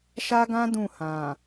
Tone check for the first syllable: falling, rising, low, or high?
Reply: high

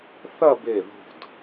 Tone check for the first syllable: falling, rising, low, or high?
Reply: falling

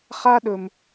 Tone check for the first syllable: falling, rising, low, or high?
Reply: high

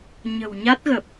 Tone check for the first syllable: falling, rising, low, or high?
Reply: low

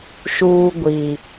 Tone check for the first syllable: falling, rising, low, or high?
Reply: low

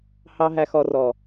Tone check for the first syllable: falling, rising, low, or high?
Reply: low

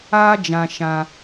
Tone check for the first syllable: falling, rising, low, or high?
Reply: high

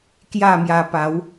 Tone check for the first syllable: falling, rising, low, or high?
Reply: falling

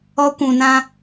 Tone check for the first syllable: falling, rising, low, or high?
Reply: high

